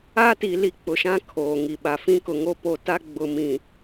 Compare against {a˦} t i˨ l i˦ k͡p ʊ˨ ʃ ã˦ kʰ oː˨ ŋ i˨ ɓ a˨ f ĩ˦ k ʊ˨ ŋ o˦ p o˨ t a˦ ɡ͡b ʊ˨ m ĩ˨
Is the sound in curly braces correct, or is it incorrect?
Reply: correct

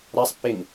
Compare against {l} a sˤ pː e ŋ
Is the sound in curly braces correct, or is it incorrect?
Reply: incorrect: ɾ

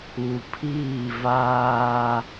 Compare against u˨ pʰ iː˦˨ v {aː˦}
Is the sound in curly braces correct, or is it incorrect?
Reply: correct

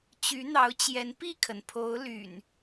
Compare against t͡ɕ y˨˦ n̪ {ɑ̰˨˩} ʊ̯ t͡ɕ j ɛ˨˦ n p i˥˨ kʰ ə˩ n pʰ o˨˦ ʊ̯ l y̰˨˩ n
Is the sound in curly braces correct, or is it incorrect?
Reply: incorrect: ɑ˨˦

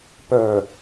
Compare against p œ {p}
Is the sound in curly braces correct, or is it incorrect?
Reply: incorrect: none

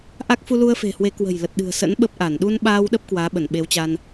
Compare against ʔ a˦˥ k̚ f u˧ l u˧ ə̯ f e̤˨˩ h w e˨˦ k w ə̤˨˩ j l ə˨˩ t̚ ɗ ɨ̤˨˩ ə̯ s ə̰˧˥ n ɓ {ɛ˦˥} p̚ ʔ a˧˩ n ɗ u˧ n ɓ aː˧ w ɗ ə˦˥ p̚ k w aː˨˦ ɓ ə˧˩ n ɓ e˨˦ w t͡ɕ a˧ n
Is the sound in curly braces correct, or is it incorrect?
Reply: incorrect: ə˦˥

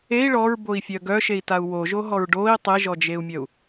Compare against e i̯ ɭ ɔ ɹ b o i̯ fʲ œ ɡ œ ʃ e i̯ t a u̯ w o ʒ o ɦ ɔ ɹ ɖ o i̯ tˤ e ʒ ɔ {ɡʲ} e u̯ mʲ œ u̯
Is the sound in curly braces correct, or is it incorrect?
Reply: incorrect: d͡ʒ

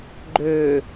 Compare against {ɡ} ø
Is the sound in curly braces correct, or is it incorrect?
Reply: incorrect: ɡ͡ǃ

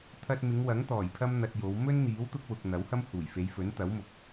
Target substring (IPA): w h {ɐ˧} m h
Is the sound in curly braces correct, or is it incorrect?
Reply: incorrect: ɐ˥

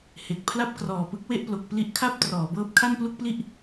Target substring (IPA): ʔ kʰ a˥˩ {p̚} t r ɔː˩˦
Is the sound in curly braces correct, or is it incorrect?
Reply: correct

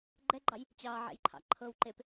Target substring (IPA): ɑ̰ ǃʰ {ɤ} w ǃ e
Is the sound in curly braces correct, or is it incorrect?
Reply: correct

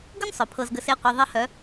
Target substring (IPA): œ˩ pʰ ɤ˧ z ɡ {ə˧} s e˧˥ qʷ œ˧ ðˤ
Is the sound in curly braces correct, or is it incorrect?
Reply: correct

